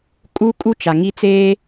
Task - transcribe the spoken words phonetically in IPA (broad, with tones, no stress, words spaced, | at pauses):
kʼu˦ kʼu˦t͡ʃa˨ ŋi˦t͡seː˦